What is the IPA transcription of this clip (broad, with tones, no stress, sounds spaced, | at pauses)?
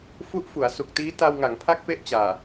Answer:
f u˦˥ ʔ f u˩˦ a̯ s u˨˩ k̚ t iː˦˥ t a˧ w ŋ a˩˦ ŋ pʰ a˦˥ k̚ p e˥˩ ʔ t͡ɕ aː˨˩